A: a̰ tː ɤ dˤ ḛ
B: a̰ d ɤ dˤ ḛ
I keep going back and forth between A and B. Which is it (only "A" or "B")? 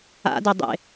B